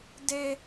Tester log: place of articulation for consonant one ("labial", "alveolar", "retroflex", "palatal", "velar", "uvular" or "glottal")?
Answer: alveolar